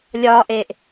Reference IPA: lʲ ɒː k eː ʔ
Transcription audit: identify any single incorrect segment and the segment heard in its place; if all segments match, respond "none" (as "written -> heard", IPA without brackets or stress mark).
k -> ʔ